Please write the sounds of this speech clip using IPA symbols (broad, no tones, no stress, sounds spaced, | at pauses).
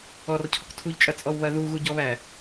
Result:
ɔ r cʰ ɔ k tʰ u ʎ t͡ʃʼ ɐ t͡sʼ ɔ w β ɐ ð u ɣ u ɟ ɔ β æ